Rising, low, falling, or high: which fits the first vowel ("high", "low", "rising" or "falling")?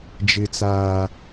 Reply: high